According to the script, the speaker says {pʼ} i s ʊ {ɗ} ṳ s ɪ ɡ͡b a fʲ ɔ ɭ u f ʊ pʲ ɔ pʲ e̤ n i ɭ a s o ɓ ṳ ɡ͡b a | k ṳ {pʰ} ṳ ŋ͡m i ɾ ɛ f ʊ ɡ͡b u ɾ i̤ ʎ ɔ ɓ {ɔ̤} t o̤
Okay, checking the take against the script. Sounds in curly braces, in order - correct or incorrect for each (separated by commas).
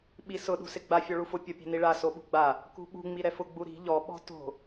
incorrect, correct, incorrect, correct